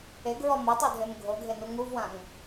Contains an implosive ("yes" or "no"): no